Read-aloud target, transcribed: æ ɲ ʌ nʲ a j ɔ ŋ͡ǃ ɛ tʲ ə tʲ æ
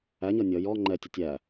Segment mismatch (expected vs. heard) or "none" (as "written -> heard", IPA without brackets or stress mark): a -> ʌ